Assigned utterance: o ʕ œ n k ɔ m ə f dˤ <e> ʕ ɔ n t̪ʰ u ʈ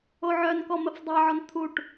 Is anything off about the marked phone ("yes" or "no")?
no